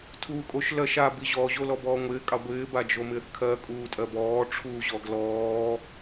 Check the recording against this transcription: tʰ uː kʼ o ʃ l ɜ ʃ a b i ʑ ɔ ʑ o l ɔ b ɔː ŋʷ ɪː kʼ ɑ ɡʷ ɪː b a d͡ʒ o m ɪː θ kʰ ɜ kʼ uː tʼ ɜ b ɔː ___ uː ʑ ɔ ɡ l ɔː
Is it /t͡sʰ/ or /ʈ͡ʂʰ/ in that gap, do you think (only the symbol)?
ʈ͡ʂʰ